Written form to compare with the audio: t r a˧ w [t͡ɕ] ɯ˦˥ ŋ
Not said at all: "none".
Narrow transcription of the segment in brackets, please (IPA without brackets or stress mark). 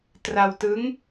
t